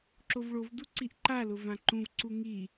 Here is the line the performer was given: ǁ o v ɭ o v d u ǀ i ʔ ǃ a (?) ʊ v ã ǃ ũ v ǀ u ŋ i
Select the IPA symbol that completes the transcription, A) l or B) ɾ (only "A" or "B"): A